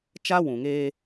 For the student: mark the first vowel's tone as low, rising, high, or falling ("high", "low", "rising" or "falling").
high